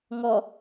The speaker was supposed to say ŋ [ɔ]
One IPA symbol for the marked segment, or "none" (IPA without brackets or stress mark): ɔ